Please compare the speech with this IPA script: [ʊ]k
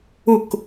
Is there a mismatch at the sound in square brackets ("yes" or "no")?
no